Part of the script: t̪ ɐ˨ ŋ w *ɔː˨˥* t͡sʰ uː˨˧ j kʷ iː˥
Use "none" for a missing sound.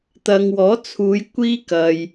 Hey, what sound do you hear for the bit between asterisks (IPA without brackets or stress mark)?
ɔː˨˥